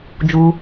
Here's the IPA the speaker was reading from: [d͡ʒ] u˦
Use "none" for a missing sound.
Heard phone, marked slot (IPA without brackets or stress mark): d͡ʒ